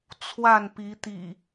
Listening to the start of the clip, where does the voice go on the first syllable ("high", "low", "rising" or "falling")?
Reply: falling